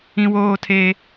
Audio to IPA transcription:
ĩ˦ w oː˦ tʰ eː˦

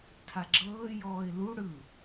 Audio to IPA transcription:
tʰ a ɡ͡ǁ ɤː j ɔː ɪ̯ l u ɽ ɯ

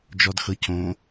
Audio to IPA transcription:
d͡ʒ ɔ d x ɤ c õ

